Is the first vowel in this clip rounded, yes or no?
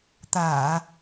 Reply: no